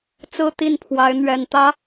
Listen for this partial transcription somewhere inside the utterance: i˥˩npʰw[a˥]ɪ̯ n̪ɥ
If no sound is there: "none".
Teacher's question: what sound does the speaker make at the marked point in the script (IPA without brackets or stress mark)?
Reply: a˧˥